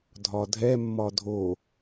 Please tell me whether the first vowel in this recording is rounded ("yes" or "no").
yes